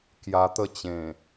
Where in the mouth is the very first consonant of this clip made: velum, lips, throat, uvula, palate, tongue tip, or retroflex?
velum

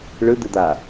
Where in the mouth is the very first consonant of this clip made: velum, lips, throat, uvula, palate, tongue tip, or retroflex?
retroflex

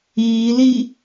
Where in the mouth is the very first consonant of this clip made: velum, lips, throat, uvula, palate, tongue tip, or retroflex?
tongue tip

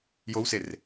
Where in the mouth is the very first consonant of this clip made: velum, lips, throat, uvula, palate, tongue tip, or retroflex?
palate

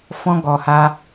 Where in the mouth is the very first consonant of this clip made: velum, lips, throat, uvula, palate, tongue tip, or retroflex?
lips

